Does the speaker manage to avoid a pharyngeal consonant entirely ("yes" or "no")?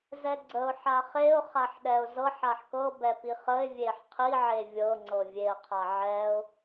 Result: no